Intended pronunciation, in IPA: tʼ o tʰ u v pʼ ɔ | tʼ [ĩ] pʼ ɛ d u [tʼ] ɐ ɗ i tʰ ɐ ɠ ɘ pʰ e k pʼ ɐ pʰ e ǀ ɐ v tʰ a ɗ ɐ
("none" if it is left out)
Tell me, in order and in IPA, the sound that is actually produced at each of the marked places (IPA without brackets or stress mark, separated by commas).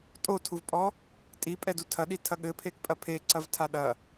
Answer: i, tʰ